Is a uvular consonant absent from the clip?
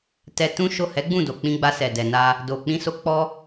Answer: yes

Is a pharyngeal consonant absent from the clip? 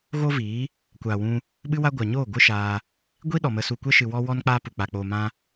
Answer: yes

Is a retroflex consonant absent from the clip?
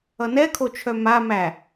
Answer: yes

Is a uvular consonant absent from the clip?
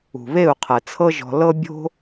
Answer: no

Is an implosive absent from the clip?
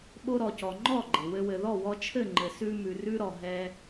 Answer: no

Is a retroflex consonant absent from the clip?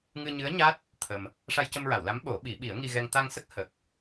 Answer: no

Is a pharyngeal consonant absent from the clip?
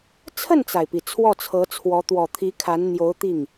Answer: yes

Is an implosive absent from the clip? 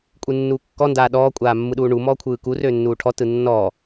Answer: no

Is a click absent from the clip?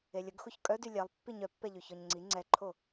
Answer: no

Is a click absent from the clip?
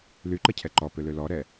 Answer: no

